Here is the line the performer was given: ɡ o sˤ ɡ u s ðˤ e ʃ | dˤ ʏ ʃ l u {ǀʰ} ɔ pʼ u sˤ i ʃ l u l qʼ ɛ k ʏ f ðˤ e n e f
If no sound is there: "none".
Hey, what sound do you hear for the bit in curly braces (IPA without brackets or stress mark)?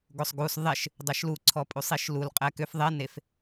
ǀʰ